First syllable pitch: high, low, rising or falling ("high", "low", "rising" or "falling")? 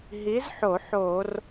rising